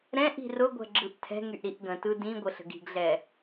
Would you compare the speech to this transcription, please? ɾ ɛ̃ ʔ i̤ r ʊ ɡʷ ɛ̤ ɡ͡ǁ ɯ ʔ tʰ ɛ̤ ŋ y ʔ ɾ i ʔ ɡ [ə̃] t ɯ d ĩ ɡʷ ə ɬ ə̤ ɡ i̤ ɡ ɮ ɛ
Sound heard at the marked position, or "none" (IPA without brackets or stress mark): ə̃